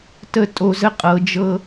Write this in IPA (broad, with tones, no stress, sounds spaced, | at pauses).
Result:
t ə˦ tʼ o˧ z ə˦ qʼ ɤ˨˦ d͡ʒ ɤ˦